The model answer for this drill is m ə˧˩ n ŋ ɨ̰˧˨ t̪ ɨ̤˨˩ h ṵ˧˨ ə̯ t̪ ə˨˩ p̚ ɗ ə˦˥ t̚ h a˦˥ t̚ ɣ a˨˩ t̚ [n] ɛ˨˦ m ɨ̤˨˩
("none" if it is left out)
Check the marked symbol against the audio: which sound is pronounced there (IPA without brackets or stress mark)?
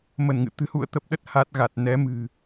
n